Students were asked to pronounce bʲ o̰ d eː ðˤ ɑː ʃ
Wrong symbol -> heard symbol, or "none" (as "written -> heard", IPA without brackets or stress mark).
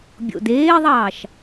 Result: none